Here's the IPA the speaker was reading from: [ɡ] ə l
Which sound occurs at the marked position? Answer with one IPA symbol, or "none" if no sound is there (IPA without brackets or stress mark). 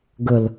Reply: ɡ